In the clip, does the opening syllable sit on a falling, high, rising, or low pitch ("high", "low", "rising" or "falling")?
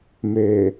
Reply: low